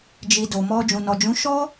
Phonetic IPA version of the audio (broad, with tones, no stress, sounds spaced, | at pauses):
d͡ʒ i˨ d o˨ m ɔ˧ d͡ʒ ũ˨ n ɔ˨ d͡ʒ ũ˨˦ ʃ ɔ˦